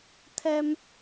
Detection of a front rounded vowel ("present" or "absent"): absent